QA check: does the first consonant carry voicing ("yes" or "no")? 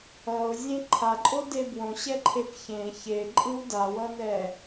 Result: yes